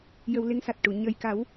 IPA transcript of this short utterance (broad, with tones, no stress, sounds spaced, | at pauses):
j ə˧ w l e˧˥ ŋ s a˨˩ t̚ ʈ u˨˩˨ ɲ ə˨˩ j k a˨˩˦ w